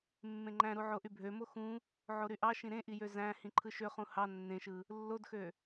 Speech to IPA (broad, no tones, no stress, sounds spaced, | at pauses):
mː ẽ ŋ͡ǃ æ̃ ɾ u ʕ o ʔ y bʱ ø m o x ũ | ʕ o ɾ y ʔ ɑ ʃ ĩ ɾ ẽ ʔ i j ø z æ̃ h ĩ ǃʰ ɯ ʃ ø χ ũ h ɑ nː ẽ ʃ ɯ | lː o d x ø